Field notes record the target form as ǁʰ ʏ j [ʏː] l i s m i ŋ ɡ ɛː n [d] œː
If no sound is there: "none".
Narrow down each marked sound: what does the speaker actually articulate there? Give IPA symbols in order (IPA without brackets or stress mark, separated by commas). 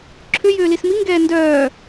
ʏː, d